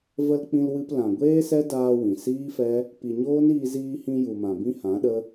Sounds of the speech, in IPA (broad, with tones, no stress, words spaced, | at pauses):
və˧l k͡pĩ˧lwɨ˧p lã˨ɡʷeː˦sɛ˦daː˧ wĩ˨siː˦fɛ˦ | pi˨ɲoː˦niː˧ ziː˧hĩ˧ju˨mã˨ bĩ˦hã˨˦ɗə˦